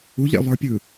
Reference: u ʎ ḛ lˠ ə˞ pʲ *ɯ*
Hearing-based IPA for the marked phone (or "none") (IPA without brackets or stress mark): ɯ